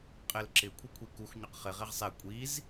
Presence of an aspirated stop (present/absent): present